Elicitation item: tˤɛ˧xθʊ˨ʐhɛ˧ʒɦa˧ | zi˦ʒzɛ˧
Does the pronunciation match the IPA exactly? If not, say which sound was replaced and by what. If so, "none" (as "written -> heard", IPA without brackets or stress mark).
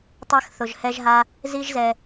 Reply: ʐ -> ʒ